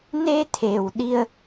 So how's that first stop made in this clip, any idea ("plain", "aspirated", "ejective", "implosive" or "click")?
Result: aspirated